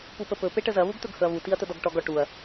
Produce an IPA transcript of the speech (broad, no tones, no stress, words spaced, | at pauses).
pupəpɵ peʈəzɐ βuɡt̪ɵɡhɵɐ̯βu tiɐ̯t̪ədɔɡʈɔɡ ɔʈuɐ̯